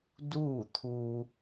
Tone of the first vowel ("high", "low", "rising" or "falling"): falling